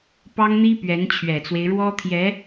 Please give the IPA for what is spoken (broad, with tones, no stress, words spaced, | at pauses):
pɑ˥ŋn̪i˥ pɥɛ˧˥nt͡ɕʰɥɛ˨˩t͡swe˦ɪ̯ ɻwɔ˥t̪ʰjɛ˧˥